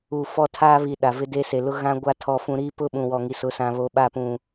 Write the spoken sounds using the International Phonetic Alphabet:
uː˨ f ɔ˦˨ tʰ aː˦ β i˨ ɗ a˨ v ɪ˦ d e˦ s e˨ l ʊ˦ ɣ ã˦ ɡʷ a˦ tʰ ɔ˨ f ũ˨ ɾ i˦ p ʊ˦ ɓ ũ˨ w ɔ˨ ŋ i˨ s ʊ˨˦ s ã˨ β o˨˦ ɓ a˦˨ p ũ˨

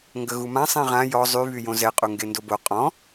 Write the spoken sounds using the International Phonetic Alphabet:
ŋ ɡ ə ɣ u m ã sˤ ẽ ʁ ã j ɔ zˤ y β y j õ z ɛ qʼ u ŋ ɡ e n d o b o qʼ ɔ̃

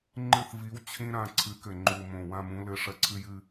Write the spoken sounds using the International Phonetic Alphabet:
ŋ͡ǃ ɨ˦˨ θ v i˨˥ w t͡ɕʰ ĩ˦ ɾ ã˦˨ ǀʰ ɨ˨˥ k ɘ˨˩ ŋ͡ǃ u˨˩ m õ˨˩ w ã˦˨ m ũ˨˥ l ɘ˦˨ ʂ ɐ˦ ǀʰ ɨ˦ j ɨ˦

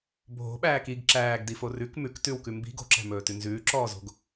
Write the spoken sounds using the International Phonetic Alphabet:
bʱ o̤ ɓ æː k i ɡ ǁ æː ɡ d i f o r ʉ k m ʉ k t ʉ w k ʉ m b i̤ ɡ o̤ ǁ æ̤ m ɵː t ʉ n z ʉː ǁ ɔː z o̤ ɡ

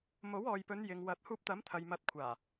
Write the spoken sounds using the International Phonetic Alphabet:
m o˨˥ w ɔː˨ j p ɵ˨˧ n j ɪ˨ ŋ w ɐ˨˥ t̚ h uː˧ p̚ t̪ ɐ˨˥ m t̪ʰ ɐ˨ j m ɐ˨˥ t̚ kʷʰ aː˨˩

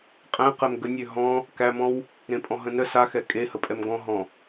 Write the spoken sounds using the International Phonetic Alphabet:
qʼ æ̃ q ɛ m ɡ ə nʲ ø ɦ ɔ̃ | k æ m ɔ̃ w | ɾ ẽ pʼ ɔ̃ ɦ ə̃ n ə s a x ɛ kʼ e h ə pʼ ɛ m ɡ ɔ̃ ɦ ɔ̃

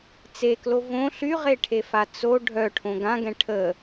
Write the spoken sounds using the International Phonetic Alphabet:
t͡s e k l o v õ ɬ y ʁ e ʈʰ e f a t͡s o ɖʱ œ ʈʰ õ ɡ ã ɡ ɛ̃ ʈʰ ə

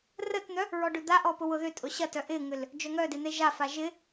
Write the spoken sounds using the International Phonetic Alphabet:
r ə t n̪ œ | ɹ ɔ ɖ ʏ d̪ a ʔ ɔ p ʊ w ʊ ð ʏ tʼ ʊ ɕ ɐ t œ ʔ ɪ ŋ ʏ l | d͡ʒ œ ŋ œ d e n̪ e ʒ a f a ʒ ɪ

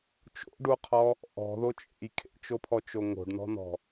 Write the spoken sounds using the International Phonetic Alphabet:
t͡ʃ o̰ ɖ u qʰ ɔ | ʔ ɔ̤ ð o t͡ʃʼ ḛ j kʰ ḛ t͡ʃ o pʰ ɔ t͡ʃ o ŋ o̤ ɖ n ɔ̤ n ɔ̤

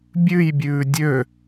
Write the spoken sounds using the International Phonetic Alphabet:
bʲ ʉ j bʲ ʉː dʲ ø

